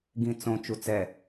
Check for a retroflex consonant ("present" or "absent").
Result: absent